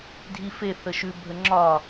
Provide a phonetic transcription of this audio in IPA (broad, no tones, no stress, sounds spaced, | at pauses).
dʱ i f e θ ə ʃ ʉ bʱ ə ŋ͡ǁ ɒ